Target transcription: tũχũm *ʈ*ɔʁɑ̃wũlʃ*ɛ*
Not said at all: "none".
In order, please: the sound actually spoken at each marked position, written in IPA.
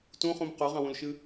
q, ɨ

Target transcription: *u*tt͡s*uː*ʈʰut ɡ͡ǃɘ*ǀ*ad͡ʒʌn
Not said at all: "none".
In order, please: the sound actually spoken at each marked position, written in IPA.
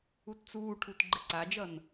u, uː, ǀ

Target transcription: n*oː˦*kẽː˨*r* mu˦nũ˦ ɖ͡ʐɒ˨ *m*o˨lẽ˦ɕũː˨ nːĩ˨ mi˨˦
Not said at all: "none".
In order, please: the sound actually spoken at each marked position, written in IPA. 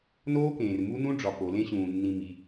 oː˦, r, p

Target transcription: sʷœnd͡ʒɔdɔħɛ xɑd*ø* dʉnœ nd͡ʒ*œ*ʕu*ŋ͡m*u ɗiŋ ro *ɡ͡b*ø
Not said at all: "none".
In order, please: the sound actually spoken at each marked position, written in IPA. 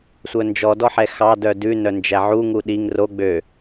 œ, æ, ŋ, ɡ͡b

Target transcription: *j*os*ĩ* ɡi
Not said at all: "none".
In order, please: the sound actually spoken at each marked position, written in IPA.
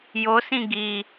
j, ĩ

